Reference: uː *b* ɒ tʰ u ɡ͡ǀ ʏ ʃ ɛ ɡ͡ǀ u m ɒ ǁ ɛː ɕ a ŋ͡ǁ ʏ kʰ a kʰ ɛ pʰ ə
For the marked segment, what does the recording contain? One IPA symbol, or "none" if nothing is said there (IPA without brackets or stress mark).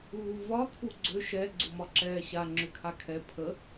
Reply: v